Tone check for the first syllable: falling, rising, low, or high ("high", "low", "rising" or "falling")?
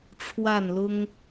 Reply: falling